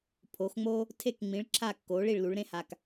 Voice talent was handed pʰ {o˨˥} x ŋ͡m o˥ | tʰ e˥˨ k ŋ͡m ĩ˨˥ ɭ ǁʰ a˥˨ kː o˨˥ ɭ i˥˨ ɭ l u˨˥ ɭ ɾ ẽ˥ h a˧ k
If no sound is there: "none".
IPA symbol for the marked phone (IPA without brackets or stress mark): o˨˥